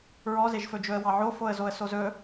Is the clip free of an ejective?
yes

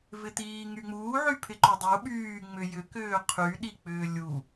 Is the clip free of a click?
no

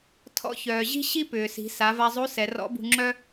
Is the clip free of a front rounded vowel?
no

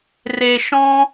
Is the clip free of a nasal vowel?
no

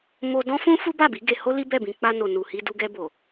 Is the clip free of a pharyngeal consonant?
yes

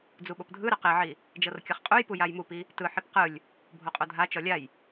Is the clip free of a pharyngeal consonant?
no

